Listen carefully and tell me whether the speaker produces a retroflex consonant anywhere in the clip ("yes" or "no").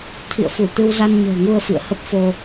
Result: no